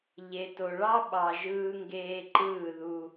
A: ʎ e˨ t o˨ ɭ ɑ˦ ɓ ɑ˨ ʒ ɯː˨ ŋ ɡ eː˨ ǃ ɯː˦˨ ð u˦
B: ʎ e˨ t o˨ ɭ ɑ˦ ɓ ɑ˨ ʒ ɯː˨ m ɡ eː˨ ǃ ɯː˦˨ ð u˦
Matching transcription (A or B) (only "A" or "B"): A